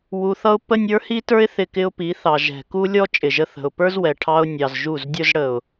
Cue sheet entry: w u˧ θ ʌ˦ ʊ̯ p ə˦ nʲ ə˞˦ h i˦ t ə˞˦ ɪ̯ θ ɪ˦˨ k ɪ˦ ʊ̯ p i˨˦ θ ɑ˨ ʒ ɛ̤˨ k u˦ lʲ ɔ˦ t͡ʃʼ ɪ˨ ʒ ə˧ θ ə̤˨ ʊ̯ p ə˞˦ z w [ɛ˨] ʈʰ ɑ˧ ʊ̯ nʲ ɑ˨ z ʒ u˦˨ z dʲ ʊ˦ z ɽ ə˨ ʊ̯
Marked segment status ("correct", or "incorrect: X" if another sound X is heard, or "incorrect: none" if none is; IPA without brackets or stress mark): correct